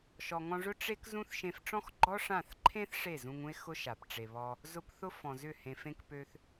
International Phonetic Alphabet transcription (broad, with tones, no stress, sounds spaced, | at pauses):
ʃ ɔ˨ ŋ ɔ̃˧ ʐ ʊ˦ ʈ͡ʂ e˦ k z ũ˦ θ ʃ ẽ˧ f ʈ͡ʂ ɔ̃˦ x ɡ͡ǃ ɔ˦ ʂ ã˦˨ θ ǃʰ ẽ˦ θ ʂ e˦˨ z ũ˧ ŋ ũ˦ e̯ x ʊ˦ ʃ a˨ p ʈ͡ʂ e˨ β ɔ˧ | z ʊ˧ p θ ʊ˧ f ɔ̃˨ z ʏ˦˨ h ẽ˨ f ẽ˧ k p ø˧ θ